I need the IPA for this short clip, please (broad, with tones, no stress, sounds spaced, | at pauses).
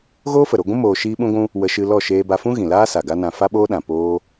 ɣ oː˦ f ə˨ ɾ o˧ ɡʷ ũ˦ m oː˧ ʃ iː˦ ɓ ũ˦ ɡʷ ũ˦ | w ə˧ ʃ ɨ˧ l ɔ˦˨ ʃ eː˧ b a˧ f ũ˦ ɣ ĩ˨ l aː˦ s a˨ ɡ a˦ n ã˧ f a˦ ɓ oː˦ ɗ ã˨ p oː˦